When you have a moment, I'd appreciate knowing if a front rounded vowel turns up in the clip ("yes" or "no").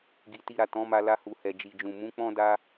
no